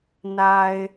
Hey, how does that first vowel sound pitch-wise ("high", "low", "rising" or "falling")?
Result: low